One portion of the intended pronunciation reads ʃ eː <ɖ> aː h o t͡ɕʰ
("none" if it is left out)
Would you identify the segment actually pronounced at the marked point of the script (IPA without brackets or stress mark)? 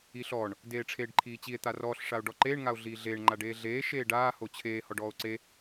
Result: ɖ